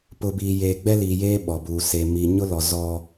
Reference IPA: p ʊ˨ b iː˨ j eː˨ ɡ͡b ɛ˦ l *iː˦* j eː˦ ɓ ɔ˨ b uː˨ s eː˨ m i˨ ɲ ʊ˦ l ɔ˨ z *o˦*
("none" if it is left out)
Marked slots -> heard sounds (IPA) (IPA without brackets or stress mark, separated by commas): iː˨, ɔ˦